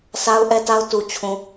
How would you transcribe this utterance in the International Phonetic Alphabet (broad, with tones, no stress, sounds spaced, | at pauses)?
s a˦ ʊ̯ ʔ ɛ˦ t a˦ ʊ̯ t u˨ t͡ɕʰ ũ˨